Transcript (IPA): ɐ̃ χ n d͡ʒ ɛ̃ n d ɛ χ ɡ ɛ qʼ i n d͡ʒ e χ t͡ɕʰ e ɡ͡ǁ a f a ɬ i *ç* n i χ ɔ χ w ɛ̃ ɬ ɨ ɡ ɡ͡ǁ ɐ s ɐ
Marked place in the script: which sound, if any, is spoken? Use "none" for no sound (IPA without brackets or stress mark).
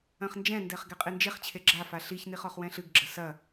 ç